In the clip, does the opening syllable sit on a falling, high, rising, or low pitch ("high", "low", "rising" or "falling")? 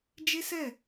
high